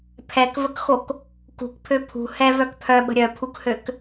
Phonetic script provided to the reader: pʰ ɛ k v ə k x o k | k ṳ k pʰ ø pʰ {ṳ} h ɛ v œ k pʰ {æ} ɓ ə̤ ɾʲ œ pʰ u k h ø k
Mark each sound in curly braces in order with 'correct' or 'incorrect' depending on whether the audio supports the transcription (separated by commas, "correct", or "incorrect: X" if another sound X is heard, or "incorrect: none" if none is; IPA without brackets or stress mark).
correct, incorrect: œ